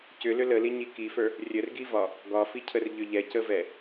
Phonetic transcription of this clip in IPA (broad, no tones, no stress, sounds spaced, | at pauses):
c ʏ l ʏ l ə l i ɲ i k i f ə˞ | rʲ ə r ɡ i v ɒ | ɡ ɒ f i cʰ ə r ʎ ʏ ʎ ɛ c ə v ɛ